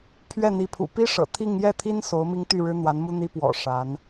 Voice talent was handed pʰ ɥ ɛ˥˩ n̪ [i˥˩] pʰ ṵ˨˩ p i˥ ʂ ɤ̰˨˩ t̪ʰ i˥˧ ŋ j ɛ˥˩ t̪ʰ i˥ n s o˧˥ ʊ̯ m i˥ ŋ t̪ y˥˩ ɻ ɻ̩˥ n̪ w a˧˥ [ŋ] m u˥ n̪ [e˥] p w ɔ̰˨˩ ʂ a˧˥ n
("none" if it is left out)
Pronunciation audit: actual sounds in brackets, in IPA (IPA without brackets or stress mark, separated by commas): i˧˥, n, i˥